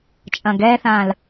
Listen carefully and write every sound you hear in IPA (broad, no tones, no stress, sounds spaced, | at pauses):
t͡ʃʼ ɐ̃ ɡ ɛ θ ã l